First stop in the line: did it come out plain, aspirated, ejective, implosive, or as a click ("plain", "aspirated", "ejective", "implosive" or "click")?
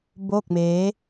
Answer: plain